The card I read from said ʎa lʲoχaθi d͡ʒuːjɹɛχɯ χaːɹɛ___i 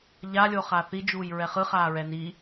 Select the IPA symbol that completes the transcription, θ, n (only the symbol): n